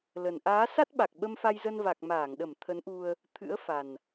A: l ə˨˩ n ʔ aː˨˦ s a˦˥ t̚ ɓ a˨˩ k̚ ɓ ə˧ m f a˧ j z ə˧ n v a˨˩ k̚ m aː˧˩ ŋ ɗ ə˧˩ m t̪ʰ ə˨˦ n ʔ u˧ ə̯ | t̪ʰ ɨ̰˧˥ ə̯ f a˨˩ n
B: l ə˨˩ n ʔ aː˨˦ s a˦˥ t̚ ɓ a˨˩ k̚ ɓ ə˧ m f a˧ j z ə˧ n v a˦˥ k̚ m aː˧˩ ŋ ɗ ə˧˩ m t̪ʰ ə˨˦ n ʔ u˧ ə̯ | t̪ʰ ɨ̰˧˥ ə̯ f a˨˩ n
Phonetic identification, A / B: A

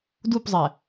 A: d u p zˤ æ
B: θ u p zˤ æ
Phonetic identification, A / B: A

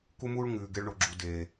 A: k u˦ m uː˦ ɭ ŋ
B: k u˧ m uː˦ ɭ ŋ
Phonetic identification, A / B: A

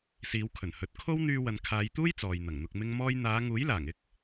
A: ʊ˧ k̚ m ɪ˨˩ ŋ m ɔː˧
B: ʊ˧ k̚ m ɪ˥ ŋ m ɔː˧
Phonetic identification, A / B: B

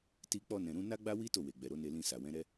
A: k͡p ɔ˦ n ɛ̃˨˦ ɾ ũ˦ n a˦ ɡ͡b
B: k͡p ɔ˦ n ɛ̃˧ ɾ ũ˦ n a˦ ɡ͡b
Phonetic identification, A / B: B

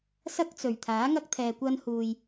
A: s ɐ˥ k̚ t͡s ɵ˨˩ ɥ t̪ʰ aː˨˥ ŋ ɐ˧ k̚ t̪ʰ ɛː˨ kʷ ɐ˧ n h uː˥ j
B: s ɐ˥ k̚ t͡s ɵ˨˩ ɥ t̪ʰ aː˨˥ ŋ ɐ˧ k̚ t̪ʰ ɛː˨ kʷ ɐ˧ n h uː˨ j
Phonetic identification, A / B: B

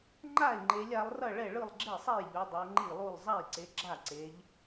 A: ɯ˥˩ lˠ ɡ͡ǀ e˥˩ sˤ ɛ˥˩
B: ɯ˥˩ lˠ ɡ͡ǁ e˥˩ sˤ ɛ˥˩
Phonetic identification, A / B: B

